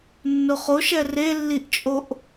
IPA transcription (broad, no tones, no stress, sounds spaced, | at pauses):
nː ʊ χ o ʃ ɛ r e lː i ʔ t͡ʃʼ o ʔ